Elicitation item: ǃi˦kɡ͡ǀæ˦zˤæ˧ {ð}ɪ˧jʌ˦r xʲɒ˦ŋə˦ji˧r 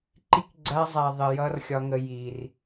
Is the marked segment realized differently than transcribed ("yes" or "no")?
yes